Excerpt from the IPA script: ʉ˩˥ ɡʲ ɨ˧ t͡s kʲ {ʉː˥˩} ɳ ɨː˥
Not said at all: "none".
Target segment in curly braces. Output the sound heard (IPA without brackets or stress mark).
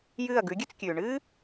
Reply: ʉː˩